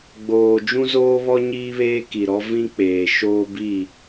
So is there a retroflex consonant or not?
no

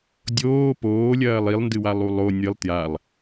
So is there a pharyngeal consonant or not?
no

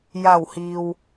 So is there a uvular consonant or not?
no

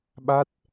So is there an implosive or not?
yes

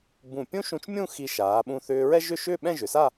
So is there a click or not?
no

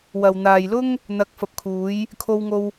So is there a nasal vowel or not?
no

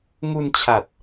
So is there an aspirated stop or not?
yes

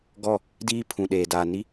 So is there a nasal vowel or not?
yes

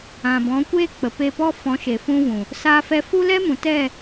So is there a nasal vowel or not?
yes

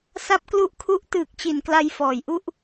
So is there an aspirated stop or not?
yes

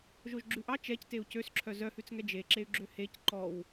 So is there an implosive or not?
no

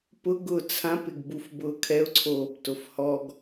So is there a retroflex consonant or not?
no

